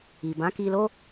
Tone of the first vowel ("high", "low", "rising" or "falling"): low